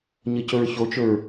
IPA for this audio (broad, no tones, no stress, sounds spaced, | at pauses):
ɲ ə c ɵ ɹ ç o t͡ʃ ɵ ɹ